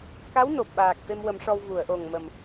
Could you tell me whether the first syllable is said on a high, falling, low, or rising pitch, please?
rising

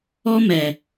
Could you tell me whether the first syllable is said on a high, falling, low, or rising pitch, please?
high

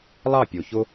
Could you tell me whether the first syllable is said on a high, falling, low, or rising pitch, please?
falling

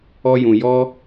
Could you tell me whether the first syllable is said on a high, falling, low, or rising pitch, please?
high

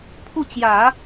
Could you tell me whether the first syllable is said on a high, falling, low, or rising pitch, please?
falling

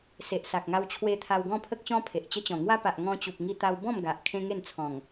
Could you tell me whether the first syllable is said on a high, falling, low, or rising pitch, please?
low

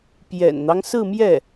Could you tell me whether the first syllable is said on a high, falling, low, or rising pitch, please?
low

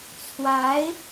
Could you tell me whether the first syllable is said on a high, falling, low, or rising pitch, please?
rising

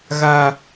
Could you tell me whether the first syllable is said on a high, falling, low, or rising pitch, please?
high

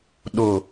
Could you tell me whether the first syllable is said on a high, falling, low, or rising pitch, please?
low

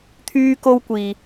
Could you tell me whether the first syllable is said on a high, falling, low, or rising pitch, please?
high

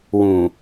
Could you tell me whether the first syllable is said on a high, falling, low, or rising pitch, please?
low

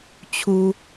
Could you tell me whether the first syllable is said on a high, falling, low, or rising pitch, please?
high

